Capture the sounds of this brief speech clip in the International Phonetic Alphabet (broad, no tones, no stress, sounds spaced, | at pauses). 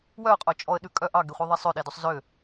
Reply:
w œ ʊ̯ qʼ o t͡ʃʼ ɔ ə̯ ɗ ʉ kʼ œ ʔ ɑ ɡ e χʷ œ ðˤ ɛ sˤ ø ɗ e d ø sˤ z ø